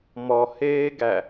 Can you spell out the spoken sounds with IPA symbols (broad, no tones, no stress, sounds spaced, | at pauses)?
m ɔ h eː ɡ æ